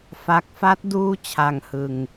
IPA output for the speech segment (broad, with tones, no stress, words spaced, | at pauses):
fa˦˥k̚ fa˦˥t̚ duː˥˩ t͡ɕʰa˧ŋhɯ˧ŋ